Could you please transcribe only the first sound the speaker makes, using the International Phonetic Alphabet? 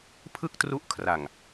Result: pʰ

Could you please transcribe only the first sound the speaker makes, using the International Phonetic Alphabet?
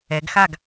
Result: ɛ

